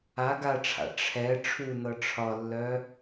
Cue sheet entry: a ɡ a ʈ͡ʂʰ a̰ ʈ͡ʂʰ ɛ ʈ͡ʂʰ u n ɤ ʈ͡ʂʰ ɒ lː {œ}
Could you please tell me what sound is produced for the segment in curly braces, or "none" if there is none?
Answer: œ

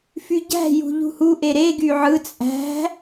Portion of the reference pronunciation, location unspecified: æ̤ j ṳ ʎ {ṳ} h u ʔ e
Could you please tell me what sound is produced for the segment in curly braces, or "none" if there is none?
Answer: ṳ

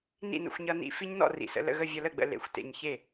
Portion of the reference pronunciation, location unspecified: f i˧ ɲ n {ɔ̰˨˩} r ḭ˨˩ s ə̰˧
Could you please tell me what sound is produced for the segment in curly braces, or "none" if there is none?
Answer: ɔ̰˥˩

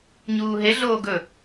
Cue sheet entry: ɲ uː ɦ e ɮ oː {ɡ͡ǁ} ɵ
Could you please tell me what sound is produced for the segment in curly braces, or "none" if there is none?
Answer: ɡ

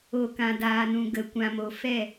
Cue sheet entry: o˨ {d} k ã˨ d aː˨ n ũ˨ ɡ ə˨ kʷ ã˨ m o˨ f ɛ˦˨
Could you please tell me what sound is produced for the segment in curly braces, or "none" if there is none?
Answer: none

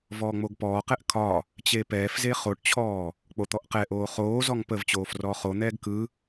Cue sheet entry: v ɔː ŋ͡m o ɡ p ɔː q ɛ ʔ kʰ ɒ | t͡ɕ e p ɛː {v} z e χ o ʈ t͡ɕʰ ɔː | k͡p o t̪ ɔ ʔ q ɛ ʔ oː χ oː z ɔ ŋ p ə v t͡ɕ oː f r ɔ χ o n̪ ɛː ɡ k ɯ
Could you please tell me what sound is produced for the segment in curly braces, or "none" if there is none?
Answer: f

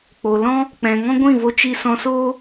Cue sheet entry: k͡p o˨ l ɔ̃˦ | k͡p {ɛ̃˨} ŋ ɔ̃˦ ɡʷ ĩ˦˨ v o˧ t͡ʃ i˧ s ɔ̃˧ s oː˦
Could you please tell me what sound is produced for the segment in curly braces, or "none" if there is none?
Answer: ɛ̃˨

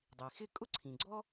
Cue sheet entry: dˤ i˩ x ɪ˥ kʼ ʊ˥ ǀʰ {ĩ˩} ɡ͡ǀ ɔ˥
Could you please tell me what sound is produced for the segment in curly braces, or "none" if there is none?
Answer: ĩ˩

